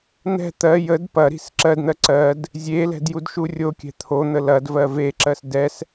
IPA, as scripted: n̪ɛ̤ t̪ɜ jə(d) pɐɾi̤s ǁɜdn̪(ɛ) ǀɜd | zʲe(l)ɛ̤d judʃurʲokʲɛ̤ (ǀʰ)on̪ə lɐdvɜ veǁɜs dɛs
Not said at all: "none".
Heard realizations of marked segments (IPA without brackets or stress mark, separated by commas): d, ɜ, l, t̪ʰ